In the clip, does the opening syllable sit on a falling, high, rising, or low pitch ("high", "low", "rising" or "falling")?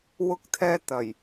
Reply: high